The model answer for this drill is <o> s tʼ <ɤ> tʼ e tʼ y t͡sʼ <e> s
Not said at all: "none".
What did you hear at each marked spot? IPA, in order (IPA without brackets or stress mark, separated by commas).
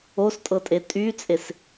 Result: o, ɤ, e